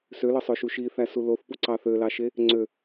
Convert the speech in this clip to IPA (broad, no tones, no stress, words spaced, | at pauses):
sølɯsˤøʃu ʃiθæsu loθpuǀɑ θølɑʃe | ŋ͡ǀø